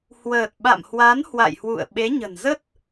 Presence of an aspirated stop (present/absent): absent